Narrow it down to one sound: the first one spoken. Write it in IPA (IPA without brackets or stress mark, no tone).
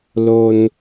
l